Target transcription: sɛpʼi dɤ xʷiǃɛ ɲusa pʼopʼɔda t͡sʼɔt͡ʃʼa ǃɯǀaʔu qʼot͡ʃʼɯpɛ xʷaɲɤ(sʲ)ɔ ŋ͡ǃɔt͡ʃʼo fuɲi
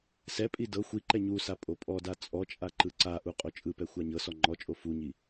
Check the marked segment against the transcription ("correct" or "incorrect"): incorrect